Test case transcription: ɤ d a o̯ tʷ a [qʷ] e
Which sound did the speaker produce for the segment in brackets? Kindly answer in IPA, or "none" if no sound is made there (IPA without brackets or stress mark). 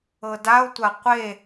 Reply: qʷ